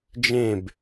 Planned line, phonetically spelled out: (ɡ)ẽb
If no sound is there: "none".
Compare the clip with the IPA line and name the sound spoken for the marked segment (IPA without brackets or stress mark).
d͡ʒ